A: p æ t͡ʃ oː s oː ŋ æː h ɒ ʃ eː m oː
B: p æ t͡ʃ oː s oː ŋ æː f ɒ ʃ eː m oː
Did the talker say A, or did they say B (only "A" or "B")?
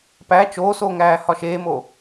A